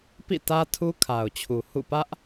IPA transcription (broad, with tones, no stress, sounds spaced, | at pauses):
p ḭ˦˨ t ä˦ tʰ u˦ kʰ a˨ ʊ̯ t͡ɕʰ u˨ h ṵ˦˨ p ä˦ ʔ